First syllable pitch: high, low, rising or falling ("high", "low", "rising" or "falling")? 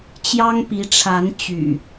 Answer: high